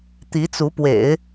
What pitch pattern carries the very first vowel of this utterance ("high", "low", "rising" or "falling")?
rising